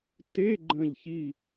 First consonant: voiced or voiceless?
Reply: voiceless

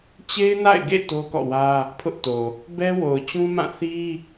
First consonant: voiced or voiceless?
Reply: voiceless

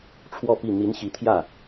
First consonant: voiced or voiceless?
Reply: voiceless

